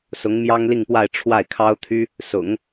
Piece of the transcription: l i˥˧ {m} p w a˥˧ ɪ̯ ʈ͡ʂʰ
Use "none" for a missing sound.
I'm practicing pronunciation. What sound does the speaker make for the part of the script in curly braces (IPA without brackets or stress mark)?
ŋ